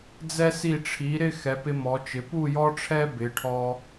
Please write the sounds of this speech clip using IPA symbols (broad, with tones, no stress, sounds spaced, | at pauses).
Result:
d͡z ɛ˧ s i˧˩ ʈ͡ʂʰ i˩˧ ɾ ɪ˥˧ x ɛ˩˧ p ɪ˧ m ɔ˩˧ t͡ʃ ɪ˩˧ p u˥˧ j ɔ˥ ʈ͡ʂʰ ɛ˥ b ɪ˩˧ ʈʰ ɔ˧